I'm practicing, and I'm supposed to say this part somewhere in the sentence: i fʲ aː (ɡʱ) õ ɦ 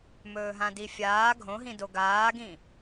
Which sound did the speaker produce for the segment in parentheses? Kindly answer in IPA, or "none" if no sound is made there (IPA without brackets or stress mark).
ɡʱ